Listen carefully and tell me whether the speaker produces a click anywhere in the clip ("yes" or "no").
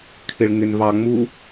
no